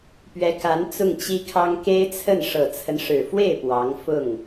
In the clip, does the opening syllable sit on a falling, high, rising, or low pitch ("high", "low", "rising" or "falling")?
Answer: rising